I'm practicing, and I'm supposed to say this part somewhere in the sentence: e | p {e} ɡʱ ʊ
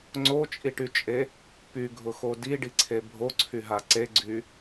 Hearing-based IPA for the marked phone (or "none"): y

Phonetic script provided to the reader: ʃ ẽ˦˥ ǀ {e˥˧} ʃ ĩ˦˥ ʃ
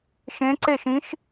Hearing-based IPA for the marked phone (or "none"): e˥˧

